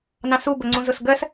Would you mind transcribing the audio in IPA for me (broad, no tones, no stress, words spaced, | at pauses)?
nɑ̃su bəŋ͡ǀũzʊsɡɜs